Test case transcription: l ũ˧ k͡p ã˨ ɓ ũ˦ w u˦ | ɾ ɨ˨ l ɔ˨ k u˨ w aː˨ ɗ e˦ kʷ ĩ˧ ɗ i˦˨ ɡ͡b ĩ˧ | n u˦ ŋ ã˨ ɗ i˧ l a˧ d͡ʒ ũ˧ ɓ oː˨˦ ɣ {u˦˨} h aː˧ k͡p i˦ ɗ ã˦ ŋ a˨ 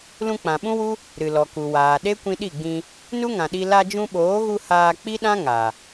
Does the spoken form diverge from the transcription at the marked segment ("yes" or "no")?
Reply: yes